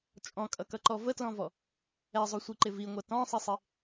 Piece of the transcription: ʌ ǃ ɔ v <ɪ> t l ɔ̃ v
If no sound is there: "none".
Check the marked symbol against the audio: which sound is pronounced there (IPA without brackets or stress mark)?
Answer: ə